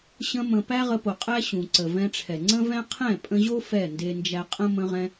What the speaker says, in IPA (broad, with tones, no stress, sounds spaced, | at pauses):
ɕ ə̃˧ m ə̃˨ p æ˦ ʁ ə˧ p o˨ qʼ æ˦ ɕ ũ˨ ǀ ə˨ v ɛ̃˧ ʈ͡ʂʰ ɛ˨ ŋ͡ǀ ə̃˦ v ɛ̃˦ qʰ ɛ̃˦˨ pʼ ə̃˧ ʑ o˦ f ɛ˦˨ n d e˧ n d͡ʒ æ˧ qʼ ə̃˦ m ə̃˧ ʁ ɛ̃˧